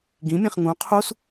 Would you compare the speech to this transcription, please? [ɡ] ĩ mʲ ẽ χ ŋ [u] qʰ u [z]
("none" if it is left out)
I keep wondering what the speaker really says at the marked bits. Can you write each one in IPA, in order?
ɡ, ũ, s

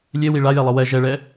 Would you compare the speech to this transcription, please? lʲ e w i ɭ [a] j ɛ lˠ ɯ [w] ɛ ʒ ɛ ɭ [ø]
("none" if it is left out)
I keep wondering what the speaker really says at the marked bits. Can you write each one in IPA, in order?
a, w, ɛ

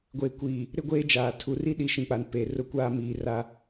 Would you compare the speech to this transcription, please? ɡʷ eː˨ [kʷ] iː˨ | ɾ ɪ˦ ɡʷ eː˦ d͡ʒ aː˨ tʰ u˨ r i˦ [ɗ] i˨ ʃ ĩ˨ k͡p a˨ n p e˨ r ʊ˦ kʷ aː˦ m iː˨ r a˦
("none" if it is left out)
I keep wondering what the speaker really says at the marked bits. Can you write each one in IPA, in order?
kʷ, ɗ

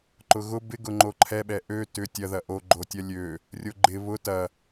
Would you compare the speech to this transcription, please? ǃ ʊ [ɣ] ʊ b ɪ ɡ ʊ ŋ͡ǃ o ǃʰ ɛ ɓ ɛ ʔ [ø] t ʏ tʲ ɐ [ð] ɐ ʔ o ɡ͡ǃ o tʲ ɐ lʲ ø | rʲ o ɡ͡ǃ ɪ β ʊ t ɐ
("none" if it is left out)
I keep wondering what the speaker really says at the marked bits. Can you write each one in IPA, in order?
ɣ, ø, ð

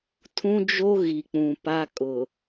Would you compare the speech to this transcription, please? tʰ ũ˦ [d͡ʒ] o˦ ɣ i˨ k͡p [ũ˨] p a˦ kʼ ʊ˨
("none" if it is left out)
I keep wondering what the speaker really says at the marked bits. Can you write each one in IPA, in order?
d͡ʒ, ũ˨

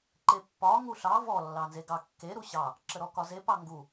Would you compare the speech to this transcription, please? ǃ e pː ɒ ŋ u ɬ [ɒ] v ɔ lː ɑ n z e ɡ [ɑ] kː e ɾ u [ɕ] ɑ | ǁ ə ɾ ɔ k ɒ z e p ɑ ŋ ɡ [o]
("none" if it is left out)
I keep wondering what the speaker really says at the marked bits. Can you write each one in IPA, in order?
ɑ, ɑ, ɕ, u

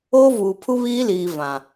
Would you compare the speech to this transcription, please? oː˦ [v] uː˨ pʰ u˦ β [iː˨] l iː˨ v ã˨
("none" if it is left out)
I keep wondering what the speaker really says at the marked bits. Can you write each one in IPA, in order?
v, iː˦

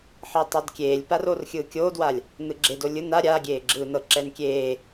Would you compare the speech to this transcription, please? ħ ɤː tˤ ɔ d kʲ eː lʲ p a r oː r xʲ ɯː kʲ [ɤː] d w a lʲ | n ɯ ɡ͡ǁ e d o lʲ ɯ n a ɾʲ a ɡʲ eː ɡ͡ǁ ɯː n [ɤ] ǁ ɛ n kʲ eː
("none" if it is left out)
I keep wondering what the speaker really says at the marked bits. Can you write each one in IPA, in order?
oː, ɤ

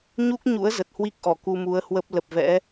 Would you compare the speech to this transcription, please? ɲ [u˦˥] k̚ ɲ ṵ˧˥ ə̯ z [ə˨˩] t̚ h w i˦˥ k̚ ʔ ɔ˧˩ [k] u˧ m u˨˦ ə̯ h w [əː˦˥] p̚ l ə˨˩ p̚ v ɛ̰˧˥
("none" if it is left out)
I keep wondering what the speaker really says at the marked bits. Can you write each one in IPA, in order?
u˦˥, ə˨˩, k, ə˦˥

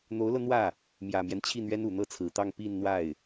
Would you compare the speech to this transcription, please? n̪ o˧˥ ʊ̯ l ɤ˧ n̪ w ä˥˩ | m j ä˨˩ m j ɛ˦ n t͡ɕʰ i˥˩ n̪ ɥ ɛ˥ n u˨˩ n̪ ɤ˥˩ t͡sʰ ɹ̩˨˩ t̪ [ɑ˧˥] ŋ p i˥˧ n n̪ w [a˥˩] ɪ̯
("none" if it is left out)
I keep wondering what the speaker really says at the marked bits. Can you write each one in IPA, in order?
ɑ˥˧, a˥˩

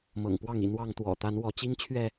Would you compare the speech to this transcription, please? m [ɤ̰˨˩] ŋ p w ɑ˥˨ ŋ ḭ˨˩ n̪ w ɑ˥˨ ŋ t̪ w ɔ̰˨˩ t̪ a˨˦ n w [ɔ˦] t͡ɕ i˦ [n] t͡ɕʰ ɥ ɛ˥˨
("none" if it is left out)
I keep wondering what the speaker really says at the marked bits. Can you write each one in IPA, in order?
ɤ̰˨˩, ɔ˨˦, ŋ

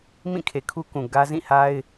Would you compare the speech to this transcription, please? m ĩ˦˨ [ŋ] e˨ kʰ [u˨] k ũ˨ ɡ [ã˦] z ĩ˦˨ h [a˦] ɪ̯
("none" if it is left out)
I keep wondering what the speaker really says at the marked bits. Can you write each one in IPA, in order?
kʰ, u˦, ä˦, a˦

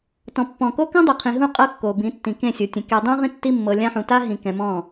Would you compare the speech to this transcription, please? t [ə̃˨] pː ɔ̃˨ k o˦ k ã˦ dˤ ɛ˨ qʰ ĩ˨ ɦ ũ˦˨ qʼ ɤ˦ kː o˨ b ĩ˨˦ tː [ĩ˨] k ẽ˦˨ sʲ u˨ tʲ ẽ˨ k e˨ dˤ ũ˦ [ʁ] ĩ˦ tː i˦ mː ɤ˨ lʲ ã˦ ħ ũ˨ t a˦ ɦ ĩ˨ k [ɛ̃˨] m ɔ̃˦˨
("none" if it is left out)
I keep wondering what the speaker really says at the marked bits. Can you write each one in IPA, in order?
ɔ̃˨, ĩ˨, ʁ, ɛ̃˨

